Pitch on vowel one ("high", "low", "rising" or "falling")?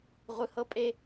low